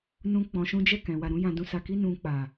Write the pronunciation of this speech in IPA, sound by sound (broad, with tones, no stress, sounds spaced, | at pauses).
n ũ˦ k͡p ɔ̃˧ ʃ ũ˦ d͡ʒ ɛ˦˨ k ɛ̃˨ w a˨ ɾ ũ˨˦ j ã˧ d ũ˧ s a˧ k i˦ n ũ˧ k͡p a˨